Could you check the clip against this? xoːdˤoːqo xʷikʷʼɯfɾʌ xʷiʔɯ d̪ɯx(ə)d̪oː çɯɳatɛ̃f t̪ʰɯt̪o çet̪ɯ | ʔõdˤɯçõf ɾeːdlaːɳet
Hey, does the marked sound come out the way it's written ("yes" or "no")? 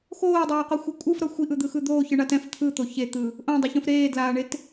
no